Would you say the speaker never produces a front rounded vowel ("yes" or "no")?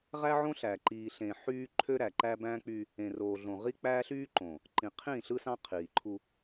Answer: no